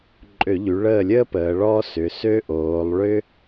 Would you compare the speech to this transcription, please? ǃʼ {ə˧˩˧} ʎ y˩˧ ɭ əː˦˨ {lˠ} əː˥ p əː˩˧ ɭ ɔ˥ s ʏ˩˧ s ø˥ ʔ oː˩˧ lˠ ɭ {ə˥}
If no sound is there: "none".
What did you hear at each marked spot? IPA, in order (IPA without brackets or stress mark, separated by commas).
ø˧˩˧, lʲ, ʏ˥